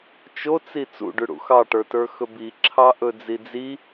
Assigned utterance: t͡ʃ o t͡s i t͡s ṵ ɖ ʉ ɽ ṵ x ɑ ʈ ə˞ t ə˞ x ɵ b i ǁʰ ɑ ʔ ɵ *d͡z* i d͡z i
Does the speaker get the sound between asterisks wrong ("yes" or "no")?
no